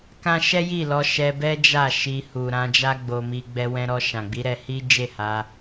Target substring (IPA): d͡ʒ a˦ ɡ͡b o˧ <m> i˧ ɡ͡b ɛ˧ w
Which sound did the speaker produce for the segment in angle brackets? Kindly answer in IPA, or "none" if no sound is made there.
m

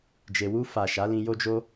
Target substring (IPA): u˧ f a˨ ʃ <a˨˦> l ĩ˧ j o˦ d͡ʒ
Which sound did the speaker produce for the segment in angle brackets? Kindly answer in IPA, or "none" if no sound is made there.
a˨˦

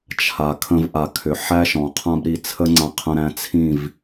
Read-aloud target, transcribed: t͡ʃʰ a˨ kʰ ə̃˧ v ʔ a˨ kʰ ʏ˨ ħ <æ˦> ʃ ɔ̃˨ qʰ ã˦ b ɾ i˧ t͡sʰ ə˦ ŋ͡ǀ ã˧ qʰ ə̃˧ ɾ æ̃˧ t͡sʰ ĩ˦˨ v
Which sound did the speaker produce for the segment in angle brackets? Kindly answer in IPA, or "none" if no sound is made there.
æ˦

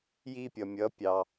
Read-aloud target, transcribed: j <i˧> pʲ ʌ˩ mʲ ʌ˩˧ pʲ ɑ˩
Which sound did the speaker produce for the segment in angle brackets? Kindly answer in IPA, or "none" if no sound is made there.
i˧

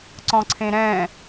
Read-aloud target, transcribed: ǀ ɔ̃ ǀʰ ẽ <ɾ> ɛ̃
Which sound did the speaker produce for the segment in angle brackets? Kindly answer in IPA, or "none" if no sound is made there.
ɾ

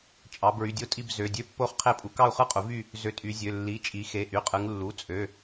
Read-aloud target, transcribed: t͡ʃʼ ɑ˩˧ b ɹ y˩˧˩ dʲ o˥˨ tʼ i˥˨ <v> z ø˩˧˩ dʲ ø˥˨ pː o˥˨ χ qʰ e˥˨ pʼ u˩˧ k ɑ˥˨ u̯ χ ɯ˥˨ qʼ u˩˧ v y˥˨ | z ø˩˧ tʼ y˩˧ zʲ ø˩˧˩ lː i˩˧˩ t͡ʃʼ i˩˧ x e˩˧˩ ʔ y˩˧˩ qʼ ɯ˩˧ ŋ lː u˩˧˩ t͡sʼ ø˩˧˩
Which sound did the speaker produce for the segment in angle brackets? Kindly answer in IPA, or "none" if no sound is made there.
b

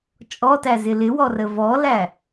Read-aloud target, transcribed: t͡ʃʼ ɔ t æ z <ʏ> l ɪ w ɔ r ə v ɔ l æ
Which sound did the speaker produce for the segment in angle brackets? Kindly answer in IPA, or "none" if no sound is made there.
ɪ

